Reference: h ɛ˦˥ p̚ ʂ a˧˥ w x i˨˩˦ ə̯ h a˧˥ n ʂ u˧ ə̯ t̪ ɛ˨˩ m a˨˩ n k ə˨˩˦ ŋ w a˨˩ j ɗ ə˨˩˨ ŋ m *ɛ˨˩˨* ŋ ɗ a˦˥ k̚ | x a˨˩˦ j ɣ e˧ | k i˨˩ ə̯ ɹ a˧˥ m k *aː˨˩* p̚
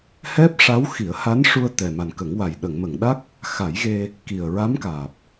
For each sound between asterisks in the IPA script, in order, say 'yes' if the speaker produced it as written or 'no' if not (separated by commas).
no, yes